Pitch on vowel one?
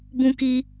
high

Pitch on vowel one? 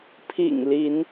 low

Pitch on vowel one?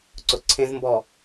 low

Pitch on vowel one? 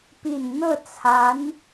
low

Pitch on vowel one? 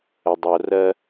low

